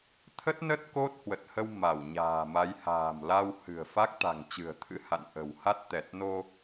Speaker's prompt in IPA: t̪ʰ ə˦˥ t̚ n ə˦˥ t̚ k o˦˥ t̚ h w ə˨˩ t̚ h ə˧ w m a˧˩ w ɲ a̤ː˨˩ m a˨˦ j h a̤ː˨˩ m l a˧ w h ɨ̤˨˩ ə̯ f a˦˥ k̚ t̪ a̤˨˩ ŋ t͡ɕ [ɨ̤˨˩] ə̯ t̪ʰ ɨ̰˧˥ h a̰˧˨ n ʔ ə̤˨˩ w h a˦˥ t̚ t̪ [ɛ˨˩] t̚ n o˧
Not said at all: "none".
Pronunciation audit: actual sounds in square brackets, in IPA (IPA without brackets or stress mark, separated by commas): ɨ̤˨˩, ɛ˨˩